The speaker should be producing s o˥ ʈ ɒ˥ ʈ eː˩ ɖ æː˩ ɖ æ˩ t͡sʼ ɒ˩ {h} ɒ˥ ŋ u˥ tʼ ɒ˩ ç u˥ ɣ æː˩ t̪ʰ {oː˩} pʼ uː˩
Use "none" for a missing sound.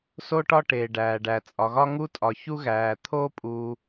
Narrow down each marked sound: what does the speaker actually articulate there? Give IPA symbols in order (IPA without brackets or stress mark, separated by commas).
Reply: ɣ, oː˥